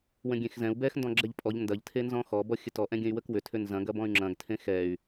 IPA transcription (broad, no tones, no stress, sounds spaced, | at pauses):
w ə̃ ɡʲ ẽ x z ɛ̃ u̯ b ɛ x n d ɔ̃ ɡ͡ǁ ɛ ʎ pʼ ɔ ʎ n d ɐ ʎ tʰ e n z ɔ̃ x ɔ b ɔ xʲ ə t ɔ ʔ ɛ̃ ɡʲ ə̃ y̯ w ə k w ʏ tʰ ʏ n z ɐ̃ ɡ ɐ b ɔ̃ y̯ ŋ͡ǁ ɐ̃ ɡ tʰ ẽ x ɛ y̯